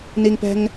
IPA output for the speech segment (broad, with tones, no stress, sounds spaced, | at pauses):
n i˦ ŋ p ɛ̤˦ ŋ